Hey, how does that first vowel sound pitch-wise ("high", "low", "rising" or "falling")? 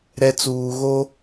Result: low